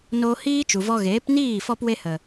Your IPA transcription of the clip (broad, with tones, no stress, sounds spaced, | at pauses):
n o˧ h iː˦ t͡ʃ u˨ v ɔ˧ ɣ eː˨˦ p n iː˦˨ f ɔ˧ p w e˧ h ə˨